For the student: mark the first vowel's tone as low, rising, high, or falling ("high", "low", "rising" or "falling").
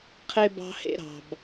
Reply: high